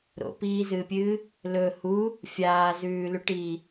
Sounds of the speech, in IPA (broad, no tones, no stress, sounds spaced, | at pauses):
ɾ o̰ p iː z ɨː pʲ ɨː | l ɵ h u | fʲ aː z ʉː l ʉ ʈ iː